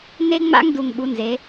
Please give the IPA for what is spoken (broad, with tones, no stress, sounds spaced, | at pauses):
n e˦ ŋ͡m a̰˦ ŋ d u˨ ŋ ɓ u˨˦ n z e˨˦